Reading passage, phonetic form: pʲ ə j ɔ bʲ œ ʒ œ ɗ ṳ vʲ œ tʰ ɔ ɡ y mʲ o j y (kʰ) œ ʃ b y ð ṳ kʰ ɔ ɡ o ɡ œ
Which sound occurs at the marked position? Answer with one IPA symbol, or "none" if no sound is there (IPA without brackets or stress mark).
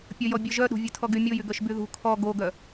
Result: ɡ